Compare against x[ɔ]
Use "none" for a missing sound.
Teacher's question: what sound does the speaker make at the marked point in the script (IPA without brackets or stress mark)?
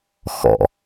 ɔ̰